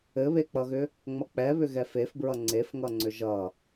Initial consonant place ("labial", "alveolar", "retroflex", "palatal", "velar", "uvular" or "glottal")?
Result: labial